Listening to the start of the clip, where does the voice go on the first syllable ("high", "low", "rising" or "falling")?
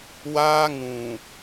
high